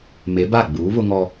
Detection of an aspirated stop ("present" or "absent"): absent